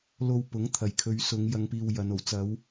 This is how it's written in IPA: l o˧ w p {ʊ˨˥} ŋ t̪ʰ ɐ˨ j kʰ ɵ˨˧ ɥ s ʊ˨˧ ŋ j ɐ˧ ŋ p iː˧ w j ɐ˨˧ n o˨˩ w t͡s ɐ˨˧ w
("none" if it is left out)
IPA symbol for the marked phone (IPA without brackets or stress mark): ʊ˨˥